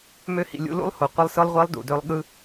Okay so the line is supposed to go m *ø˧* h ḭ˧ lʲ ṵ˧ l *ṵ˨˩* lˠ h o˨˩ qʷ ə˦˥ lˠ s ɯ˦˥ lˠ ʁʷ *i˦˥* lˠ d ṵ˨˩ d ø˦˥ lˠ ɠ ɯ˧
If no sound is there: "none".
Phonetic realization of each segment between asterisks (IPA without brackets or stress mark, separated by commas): ø˦˥, ṵ˦˥, i˦˥